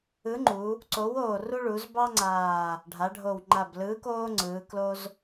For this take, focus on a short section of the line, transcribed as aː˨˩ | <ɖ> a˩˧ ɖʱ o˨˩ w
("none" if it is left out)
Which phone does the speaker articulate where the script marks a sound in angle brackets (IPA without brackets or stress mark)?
ɖʱ